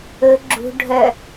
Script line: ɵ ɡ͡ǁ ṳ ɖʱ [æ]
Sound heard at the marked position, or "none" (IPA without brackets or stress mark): œ